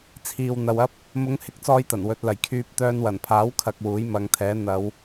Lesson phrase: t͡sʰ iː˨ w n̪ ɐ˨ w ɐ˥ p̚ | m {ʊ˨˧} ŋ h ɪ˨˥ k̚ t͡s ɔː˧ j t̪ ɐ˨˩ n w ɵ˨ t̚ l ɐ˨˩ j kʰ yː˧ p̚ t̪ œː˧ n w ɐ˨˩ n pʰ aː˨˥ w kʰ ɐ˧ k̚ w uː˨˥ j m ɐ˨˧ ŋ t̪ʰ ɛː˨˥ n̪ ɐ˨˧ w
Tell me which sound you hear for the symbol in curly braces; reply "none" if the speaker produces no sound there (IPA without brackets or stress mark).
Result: ʊ˨˧